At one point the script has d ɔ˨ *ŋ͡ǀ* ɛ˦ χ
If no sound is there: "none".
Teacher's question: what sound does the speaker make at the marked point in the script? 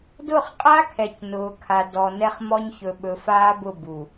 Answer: n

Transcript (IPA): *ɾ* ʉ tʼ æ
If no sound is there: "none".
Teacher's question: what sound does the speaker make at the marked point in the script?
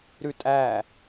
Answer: ɾ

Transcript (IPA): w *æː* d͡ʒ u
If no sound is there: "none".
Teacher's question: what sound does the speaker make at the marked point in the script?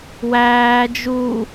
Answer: æː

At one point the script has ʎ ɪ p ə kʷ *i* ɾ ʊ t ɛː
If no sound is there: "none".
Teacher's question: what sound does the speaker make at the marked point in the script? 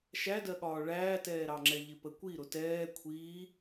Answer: i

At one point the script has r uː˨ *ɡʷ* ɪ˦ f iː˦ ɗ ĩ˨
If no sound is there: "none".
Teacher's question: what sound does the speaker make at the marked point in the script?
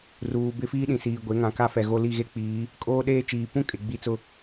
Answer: b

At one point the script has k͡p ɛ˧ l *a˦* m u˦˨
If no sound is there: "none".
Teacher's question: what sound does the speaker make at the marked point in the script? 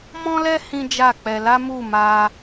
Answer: a˦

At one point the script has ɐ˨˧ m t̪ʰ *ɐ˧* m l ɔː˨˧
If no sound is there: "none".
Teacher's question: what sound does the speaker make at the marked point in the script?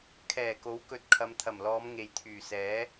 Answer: ɐ˨˩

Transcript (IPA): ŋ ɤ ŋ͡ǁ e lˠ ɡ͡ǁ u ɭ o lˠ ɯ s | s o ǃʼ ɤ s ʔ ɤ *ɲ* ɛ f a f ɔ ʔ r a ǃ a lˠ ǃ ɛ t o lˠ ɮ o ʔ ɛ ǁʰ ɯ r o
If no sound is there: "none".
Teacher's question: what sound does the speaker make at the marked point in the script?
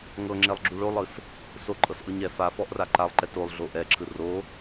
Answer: ɲ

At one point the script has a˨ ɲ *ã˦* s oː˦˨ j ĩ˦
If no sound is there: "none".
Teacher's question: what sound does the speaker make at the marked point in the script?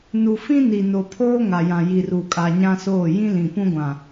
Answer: ã˦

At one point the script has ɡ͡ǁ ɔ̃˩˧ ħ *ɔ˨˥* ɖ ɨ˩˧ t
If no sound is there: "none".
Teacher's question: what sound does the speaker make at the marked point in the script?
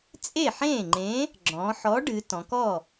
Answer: ɔ˨˥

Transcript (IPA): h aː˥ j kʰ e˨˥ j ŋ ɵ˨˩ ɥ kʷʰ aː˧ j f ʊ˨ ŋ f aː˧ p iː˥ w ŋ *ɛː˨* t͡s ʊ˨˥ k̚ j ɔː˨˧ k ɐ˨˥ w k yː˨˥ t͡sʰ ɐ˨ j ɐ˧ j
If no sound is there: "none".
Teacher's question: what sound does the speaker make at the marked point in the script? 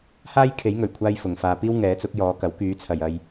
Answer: ɛː˨˥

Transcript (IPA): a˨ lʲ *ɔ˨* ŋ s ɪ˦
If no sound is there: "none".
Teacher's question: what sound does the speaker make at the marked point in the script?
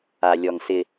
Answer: ɔ˨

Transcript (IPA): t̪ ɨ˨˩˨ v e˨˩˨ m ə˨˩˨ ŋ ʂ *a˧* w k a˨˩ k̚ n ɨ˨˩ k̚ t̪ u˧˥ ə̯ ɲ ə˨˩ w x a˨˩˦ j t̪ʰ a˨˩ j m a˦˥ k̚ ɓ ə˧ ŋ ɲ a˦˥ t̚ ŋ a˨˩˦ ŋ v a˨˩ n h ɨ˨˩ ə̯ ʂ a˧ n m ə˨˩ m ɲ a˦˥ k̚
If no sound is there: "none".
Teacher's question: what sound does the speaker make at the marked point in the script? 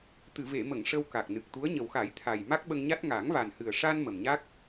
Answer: ə˧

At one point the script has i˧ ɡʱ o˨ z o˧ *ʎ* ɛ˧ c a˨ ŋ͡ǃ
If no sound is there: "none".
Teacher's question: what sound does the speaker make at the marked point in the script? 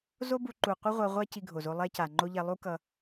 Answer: lˠ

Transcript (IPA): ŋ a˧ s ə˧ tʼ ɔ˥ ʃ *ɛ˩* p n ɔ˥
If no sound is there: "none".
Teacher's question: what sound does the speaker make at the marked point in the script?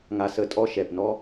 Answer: ɛ˩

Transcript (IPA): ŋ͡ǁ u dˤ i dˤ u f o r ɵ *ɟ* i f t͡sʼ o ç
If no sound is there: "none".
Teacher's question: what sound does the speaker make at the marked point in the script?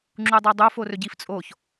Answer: ɟ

